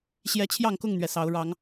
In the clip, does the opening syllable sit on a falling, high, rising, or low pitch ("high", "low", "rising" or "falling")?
high